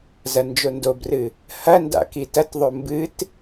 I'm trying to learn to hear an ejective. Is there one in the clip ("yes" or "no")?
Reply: no